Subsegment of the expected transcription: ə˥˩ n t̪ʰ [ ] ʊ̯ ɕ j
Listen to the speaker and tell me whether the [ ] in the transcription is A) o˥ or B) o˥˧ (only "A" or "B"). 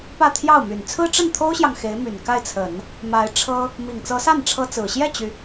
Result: A